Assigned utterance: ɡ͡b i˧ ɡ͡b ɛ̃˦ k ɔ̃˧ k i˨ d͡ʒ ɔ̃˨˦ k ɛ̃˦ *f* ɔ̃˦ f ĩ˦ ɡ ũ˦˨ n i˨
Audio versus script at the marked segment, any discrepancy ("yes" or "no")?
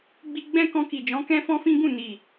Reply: no